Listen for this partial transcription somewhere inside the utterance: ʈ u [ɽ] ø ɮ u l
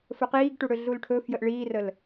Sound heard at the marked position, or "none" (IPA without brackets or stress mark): ɽ